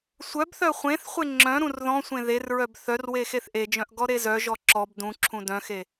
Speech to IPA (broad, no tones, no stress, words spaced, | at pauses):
sʷœbθœ χʷẽθχʷe ŋ͡ǁœ̃ɾũr ðɔ̃sʷẽ ðerɹœb θœr wexeθʔed͡ʒœ̃ʔ ɡɔɾezœʒɔ ǁɔb dũǁʰũ dœ̃xe